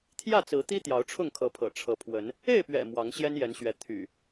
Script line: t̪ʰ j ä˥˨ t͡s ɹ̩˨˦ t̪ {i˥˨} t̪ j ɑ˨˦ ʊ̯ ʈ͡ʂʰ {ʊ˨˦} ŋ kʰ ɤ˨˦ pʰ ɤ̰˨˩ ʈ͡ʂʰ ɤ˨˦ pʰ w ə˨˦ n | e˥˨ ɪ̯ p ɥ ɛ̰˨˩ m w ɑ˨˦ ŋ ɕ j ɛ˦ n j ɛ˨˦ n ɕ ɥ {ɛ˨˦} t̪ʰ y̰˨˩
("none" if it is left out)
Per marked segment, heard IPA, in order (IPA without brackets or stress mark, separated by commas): i˦, ʊ˥˨, ɛ˨˦